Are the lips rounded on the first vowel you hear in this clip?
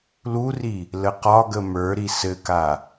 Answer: yes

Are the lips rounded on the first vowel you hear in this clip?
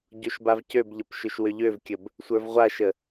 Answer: yes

